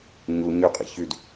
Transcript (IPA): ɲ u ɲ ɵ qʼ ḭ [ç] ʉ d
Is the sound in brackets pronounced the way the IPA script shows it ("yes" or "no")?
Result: yes